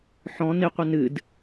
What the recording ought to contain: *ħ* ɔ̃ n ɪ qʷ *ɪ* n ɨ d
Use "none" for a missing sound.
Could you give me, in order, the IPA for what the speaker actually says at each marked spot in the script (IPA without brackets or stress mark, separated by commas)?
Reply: ħ, ɪ